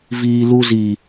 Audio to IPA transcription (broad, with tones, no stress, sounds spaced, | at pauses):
v iː˦ l u˦ z iː˦